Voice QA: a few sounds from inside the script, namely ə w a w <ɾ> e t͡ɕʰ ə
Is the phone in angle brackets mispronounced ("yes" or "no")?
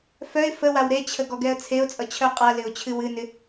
no